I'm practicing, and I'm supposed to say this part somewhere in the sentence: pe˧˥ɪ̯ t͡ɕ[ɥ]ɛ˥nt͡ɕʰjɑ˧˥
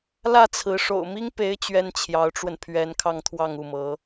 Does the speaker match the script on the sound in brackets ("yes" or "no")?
yes